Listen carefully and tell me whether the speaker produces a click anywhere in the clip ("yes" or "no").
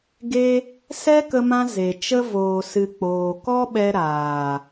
no